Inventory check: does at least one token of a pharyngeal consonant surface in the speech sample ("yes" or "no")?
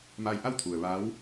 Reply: no